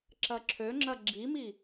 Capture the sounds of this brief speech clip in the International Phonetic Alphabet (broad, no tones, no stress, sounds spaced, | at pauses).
ǁ ɐ ǁʰ ø ŋ͡ǁ ɐ ɡ͡ǁ i m i